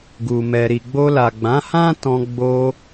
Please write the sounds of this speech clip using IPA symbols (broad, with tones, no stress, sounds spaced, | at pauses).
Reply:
ɡ u˨ m ɛ˨ ɾ i˨ ɡ͡b o˧ l a˨ ɡ͡b ã˨˦ h ã˦ t ɔ̃˧ ɡ͡b o˧